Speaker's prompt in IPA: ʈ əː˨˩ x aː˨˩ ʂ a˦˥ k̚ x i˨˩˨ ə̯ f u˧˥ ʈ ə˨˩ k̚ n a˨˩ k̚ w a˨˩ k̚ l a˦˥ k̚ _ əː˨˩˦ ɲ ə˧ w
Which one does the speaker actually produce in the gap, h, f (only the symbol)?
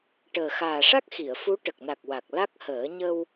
h